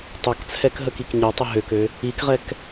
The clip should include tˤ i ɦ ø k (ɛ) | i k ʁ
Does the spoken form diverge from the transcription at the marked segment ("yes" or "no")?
yes